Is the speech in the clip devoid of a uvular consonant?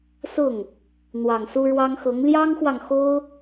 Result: yes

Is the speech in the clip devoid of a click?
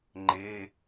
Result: no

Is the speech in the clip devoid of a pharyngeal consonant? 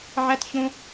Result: no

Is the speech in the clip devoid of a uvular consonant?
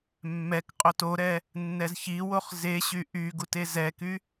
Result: no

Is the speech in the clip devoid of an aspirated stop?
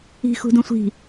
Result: yes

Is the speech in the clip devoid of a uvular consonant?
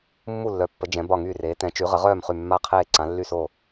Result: no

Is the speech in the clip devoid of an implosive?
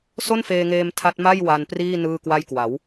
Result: yes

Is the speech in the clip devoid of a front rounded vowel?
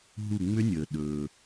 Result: no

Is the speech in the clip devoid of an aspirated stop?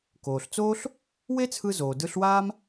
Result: no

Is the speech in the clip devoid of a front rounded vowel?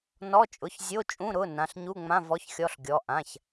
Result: yes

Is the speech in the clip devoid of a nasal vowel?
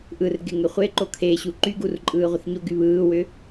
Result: yes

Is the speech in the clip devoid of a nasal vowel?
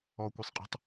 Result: yes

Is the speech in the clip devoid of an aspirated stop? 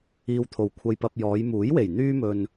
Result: no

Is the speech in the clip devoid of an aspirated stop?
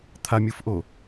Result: no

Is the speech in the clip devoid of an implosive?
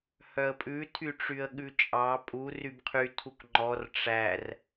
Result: no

